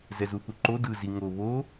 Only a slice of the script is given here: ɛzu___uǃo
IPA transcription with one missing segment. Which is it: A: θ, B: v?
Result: A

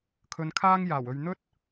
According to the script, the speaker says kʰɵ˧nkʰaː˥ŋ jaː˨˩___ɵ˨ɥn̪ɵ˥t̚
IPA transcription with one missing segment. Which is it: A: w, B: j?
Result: A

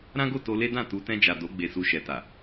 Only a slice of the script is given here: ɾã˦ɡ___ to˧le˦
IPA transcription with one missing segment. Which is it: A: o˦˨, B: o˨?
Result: A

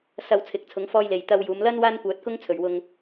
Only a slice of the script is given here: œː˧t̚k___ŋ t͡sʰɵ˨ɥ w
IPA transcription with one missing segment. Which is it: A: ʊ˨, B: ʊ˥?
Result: B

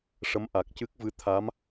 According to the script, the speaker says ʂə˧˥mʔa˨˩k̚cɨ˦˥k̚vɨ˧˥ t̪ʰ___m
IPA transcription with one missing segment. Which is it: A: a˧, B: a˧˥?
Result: B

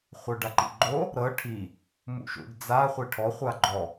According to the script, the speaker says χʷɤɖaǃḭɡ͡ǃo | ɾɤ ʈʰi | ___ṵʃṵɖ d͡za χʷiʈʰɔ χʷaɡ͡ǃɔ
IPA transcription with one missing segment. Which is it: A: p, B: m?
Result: B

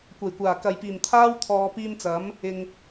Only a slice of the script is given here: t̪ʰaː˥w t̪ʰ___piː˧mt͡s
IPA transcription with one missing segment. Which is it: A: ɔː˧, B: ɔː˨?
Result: B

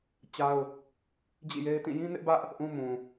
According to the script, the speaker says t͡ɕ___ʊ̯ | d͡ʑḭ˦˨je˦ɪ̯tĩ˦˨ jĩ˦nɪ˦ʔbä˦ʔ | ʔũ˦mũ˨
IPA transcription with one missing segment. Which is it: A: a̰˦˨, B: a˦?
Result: B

